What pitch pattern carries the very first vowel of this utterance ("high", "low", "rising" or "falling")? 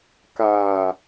low